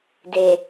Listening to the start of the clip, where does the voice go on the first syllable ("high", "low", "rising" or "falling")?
low